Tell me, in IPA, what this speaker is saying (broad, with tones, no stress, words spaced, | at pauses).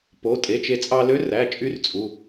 po˩˧˩ tʼe˩˧˩t͡ʃe˧ t͡sʼɑ˧lø˧˥ræ˩˧˩ t͡ʃʼy˥rt͡sʼu˩˧˩